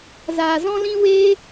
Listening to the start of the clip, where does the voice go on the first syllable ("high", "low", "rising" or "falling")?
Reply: low